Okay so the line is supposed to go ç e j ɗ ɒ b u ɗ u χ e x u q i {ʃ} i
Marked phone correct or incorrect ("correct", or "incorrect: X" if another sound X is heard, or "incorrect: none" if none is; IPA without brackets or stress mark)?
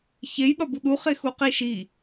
correct